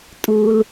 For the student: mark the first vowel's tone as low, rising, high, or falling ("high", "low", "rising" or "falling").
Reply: low